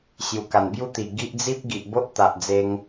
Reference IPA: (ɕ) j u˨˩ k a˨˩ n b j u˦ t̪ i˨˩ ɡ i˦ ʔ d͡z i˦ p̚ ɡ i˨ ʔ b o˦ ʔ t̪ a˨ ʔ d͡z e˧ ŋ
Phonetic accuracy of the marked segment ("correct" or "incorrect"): correct